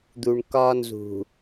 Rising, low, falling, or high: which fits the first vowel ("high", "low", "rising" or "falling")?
low